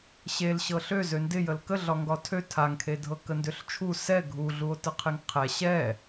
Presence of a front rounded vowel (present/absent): present